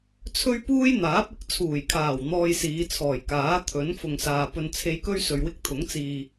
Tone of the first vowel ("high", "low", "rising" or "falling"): high